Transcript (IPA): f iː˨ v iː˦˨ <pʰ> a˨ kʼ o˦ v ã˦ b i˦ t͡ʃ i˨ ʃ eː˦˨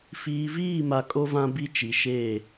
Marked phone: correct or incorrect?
incorrect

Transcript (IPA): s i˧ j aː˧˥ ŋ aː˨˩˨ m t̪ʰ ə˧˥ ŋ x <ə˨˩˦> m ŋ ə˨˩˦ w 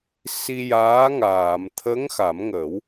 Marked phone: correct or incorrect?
incorrect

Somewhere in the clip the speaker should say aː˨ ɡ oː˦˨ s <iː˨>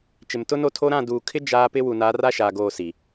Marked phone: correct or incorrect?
incorrect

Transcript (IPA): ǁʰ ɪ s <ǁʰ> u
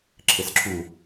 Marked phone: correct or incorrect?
correct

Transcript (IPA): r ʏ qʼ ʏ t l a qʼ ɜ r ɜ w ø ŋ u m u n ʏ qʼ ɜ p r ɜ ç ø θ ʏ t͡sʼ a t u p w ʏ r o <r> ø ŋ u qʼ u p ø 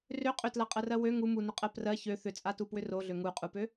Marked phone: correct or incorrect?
incorrect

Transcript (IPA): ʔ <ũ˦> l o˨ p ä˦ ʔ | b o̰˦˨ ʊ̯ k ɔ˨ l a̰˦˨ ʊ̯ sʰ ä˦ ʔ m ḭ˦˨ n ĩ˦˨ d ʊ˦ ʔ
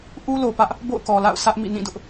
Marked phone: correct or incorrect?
incorrect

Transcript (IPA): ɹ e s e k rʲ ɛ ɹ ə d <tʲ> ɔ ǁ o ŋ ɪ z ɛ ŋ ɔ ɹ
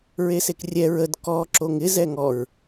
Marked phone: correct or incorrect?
incorrect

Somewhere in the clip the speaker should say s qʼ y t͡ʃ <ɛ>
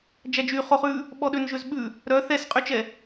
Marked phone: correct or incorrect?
correct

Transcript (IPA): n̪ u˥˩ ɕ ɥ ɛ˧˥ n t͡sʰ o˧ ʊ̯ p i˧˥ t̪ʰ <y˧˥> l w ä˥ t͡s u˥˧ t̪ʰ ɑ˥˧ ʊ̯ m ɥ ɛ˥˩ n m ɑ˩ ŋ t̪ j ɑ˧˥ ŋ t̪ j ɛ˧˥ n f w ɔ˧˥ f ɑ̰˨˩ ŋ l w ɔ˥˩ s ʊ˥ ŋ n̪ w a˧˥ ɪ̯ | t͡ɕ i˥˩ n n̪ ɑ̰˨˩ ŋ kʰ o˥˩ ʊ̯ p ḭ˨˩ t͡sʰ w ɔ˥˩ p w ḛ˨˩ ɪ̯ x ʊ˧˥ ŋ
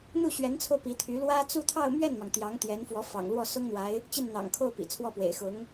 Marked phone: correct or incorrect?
correct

